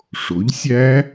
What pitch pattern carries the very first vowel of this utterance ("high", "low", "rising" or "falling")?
rising